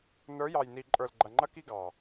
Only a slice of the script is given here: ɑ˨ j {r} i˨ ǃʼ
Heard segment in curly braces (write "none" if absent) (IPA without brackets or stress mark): n